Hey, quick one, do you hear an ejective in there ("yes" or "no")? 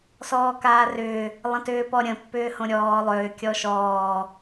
no